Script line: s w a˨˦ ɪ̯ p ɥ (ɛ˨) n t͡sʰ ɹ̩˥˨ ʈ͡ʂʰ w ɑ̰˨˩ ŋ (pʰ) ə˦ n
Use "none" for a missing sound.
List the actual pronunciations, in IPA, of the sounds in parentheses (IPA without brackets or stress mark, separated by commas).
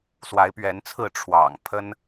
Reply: ɛ˨˦, pʰ